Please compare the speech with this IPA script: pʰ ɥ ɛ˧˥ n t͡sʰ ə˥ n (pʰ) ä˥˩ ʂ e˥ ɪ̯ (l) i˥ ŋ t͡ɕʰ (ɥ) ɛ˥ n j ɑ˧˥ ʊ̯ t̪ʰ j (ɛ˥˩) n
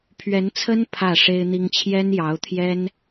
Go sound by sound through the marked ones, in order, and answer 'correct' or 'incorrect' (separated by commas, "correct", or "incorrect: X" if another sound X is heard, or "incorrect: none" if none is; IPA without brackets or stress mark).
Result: correct, incorrect: n̪, incorrect: j, incorrect: ɛ˥